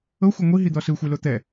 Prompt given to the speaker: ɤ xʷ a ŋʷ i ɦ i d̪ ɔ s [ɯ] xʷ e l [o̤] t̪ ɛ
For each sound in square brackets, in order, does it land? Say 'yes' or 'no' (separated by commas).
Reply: yes, no